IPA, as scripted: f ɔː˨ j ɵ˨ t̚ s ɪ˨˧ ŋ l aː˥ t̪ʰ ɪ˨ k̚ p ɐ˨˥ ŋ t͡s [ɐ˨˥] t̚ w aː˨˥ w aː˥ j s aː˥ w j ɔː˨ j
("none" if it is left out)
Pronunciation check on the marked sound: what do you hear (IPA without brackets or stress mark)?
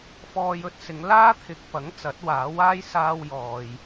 ɐ˨˥